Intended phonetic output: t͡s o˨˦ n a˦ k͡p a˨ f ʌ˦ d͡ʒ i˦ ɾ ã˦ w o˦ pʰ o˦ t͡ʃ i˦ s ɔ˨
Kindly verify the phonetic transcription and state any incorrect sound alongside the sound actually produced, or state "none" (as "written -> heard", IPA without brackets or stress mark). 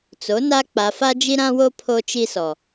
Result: ʌ˦ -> a˦